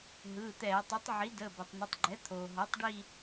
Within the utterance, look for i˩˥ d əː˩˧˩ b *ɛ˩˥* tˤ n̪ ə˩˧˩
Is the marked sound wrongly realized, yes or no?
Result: yes